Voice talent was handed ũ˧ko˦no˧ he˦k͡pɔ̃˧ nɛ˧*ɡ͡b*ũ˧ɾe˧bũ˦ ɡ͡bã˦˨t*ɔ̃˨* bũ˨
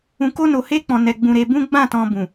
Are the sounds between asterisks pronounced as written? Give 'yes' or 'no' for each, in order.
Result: yes, no

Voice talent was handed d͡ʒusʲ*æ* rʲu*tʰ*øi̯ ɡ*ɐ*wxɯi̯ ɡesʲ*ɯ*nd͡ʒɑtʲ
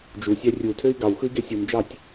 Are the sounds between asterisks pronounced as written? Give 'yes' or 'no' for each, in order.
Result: yes, yes, no, no

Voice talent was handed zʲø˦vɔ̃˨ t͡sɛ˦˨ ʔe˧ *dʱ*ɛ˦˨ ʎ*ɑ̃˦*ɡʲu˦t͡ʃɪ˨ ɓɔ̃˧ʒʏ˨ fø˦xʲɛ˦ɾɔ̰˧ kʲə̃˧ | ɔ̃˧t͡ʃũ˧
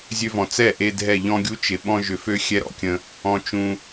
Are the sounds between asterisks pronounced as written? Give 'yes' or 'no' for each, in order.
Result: yes, no

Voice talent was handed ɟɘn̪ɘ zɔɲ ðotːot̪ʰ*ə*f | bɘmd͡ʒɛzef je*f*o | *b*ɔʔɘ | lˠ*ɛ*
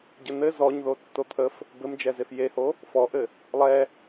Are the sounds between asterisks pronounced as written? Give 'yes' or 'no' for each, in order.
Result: yes, no, no, yes

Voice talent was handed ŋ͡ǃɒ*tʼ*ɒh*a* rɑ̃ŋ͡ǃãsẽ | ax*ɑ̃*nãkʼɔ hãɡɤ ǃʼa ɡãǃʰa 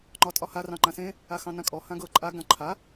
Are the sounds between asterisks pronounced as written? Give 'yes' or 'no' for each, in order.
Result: yes, yes, yes

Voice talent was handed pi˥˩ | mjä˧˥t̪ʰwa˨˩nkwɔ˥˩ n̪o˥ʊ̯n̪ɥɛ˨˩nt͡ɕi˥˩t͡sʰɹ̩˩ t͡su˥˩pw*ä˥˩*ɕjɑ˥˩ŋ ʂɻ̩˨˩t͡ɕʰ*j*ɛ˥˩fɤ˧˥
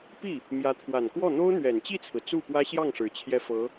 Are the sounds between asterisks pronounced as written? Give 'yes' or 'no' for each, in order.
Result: no, yes

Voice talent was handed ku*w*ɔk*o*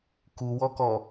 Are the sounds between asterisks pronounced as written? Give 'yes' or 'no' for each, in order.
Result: yes, no

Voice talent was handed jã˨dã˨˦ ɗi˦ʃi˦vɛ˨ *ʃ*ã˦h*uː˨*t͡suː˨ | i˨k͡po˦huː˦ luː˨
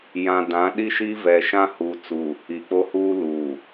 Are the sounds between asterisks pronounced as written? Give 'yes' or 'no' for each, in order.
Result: yes, yes

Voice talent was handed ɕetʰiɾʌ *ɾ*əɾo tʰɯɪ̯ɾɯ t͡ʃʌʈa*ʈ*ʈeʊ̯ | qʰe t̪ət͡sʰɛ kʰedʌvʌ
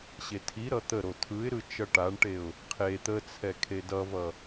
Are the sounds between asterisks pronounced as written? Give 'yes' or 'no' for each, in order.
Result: no, no

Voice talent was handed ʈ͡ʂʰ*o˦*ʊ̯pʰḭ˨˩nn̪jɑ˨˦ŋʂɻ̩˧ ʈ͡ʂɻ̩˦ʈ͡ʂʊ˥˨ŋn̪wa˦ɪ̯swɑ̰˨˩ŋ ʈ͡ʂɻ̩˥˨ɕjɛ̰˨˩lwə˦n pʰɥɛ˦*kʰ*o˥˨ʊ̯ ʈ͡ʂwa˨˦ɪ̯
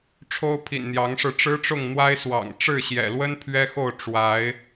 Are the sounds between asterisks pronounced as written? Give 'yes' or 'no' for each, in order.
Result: yes, no

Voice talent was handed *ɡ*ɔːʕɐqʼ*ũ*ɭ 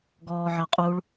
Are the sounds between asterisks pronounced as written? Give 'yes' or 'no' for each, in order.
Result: yes, no

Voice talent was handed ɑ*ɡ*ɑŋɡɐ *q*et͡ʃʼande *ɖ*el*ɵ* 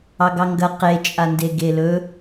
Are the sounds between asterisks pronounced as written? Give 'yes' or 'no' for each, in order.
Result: yes, yes, no, yes

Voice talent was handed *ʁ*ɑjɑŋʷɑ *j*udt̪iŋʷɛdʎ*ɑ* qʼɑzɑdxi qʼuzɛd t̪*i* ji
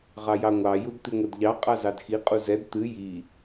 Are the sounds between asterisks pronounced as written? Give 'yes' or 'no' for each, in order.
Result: yes, yes, yes, no

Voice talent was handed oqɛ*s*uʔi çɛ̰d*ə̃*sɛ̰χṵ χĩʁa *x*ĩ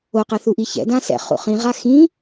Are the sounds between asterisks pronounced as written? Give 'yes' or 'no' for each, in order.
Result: no, no, yes

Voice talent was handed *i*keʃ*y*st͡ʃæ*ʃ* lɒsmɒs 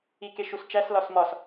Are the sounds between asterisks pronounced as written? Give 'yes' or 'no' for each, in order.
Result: yes, no, no

